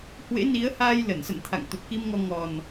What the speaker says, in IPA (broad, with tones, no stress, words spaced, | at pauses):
hwḛ˧˥ni˨˦ə̯haː˧j lə˧˩nsə̰˧˨nt̪ʰa̰˧˨ŋ t̪u˨˩p̚ki˧mŋɔ˧ ŋɔ˨˩n